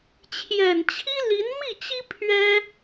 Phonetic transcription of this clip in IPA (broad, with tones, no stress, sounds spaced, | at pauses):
t͡ɕʰ j ɛ˨˩ n t͡ɕʰ i˥ l i˧˥ n m i˥˩ t͡ɕ i˥ pʰ ɥ ɛ˥